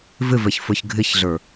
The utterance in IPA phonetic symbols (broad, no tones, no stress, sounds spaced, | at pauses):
v ɪ v ɛ ç f ə˞ ç ɡʱ ɪ ç ɮ ə˞